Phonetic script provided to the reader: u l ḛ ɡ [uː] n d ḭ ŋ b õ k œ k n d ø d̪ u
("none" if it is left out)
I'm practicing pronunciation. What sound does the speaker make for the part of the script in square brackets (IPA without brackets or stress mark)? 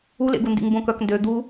u